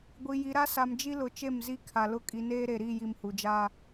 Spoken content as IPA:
ɡʷ i˨ j i˨ ɾ a˦ s a˨ m d͡ʒ i˦ l ʊ˨ t͡ʃ e˦˨ m z i˦ kʰ a˨ l ʊ˦ kʼ i˨˦ n eː˦ ɾ e˨ ɾ i˦˨ j i˨ m h u˨ d͡ʒ aː˦

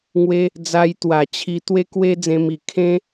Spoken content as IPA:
ŋ w e˦ | d͡z a˧ j t̪ w a˨˩ t͡ɕʰ i˧ t̪ w e˦ k w e˦ d͡z ẽ˧ m i˨˩ kʰ ẽ˦

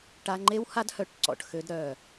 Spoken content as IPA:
ʈ a˧ ŋ͡ǃ e˦ w h a˦ d h œ˦ ʈ ǀ ɔ̰˨ ʈ x ø˦ d ɾ œ˦˨

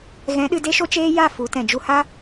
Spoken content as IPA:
ɣ ɛ̃˨˦ ɗ ɨ˧ d e˦ ʃ o˦ t͡ʃ eː˦ j a˦˨ f u˨˦ t ɛ̃˨ d͡ʒ u˧ h a˦

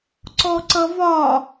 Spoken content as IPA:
ǀ ɔ ǀ ʌ v ɒ

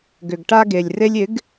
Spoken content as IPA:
ɡ ʏ˨ ɡ ʈ a˧ ɡ e˨ lʲ r e˧ lʲ ɪ˨˦ ɡ

